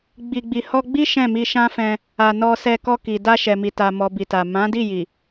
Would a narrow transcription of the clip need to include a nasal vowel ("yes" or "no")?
yes